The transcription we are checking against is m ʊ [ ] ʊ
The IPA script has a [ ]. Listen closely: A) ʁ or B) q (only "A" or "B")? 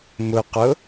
B